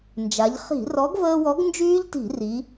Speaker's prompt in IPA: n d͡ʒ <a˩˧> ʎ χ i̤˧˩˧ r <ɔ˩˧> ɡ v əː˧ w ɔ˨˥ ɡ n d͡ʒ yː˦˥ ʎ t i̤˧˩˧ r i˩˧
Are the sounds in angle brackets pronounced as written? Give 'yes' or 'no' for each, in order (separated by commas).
yes, no